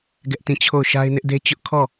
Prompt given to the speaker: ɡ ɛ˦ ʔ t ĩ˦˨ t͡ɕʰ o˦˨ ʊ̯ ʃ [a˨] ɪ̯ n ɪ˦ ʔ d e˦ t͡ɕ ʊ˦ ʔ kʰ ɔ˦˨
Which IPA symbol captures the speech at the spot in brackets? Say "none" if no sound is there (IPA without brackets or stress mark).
a˦